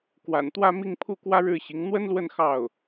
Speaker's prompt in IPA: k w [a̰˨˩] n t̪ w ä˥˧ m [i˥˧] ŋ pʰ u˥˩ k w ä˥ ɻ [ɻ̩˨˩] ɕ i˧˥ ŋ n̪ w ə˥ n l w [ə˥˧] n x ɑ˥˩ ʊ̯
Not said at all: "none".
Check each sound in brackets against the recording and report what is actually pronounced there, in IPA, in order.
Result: a̰˨˩, i˥˧, ɻ̩˥˩, ə˥˧

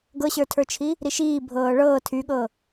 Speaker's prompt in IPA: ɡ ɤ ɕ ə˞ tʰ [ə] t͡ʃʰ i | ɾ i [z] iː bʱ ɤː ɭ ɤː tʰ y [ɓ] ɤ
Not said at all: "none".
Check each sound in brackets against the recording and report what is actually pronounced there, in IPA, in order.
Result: ə˞, ʃ, ɠ

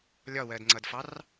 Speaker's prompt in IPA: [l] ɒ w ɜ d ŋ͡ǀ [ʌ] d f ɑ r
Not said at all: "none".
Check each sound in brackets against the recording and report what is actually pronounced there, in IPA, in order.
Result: lʲ, ʌ

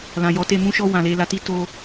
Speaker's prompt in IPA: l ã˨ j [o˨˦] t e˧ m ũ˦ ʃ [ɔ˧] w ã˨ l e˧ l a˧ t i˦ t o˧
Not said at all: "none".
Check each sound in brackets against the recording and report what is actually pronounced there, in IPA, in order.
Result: ɔ˨˦, ɔ˧

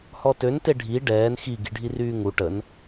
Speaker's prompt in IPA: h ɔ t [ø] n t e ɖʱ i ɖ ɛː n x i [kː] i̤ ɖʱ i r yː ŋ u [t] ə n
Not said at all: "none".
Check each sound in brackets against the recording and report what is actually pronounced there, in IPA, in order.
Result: ø, ɡ, ʈ

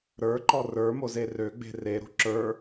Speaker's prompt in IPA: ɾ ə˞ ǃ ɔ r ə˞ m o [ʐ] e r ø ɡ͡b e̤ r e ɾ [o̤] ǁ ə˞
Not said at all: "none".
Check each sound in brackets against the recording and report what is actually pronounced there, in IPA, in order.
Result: z, o̤

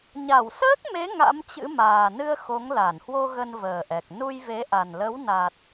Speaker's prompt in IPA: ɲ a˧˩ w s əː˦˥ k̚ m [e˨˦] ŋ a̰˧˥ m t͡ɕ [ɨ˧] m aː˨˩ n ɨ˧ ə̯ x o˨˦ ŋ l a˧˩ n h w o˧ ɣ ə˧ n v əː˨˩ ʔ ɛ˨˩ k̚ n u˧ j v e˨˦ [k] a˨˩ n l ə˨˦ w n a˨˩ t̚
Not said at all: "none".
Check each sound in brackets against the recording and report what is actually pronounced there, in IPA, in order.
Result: e˨˦, ɨ̰˧˥, ʔ

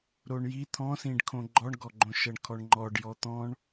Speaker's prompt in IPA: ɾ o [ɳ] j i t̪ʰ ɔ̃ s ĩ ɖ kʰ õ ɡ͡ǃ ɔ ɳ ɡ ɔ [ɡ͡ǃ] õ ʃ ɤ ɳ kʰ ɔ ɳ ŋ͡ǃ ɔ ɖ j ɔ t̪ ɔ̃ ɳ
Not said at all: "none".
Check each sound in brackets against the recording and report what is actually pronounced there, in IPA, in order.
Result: ɳ, ɡ͡ǃ

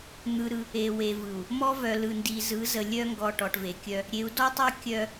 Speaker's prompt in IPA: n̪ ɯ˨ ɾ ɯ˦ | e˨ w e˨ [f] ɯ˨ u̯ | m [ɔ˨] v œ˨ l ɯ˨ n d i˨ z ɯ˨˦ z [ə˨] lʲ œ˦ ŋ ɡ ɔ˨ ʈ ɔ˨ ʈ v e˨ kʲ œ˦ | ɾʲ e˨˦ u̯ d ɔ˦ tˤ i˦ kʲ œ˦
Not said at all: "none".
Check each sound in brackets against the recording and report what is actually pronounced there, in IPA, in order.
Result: v, ɔ˦, ə˨

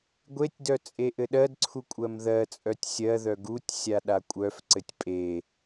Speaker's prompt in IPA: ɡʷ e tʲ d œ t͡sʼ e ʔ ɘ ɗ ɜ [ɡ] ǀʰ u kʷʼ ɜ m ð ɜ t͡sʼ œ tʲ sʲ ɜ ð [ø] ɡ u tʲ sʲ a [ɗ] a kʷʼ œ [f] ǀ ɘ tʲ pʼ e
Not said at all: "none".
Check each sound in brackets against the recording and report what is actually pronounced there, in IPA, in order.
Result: d, œ, ɗ, f

